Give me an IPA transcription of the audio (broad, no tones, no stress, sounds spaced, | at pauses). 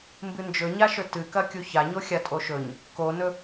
m b ɨ n d͡ʒ ɵ ɲ a ʃ ɵ t ɨ k ɐ kʲ u ç a ɲ o xʲ a tʼ o ʃ ɵ ɲ | k o n ɵ